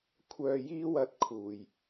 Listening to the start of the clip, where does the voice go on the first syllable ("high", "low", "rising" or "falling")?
low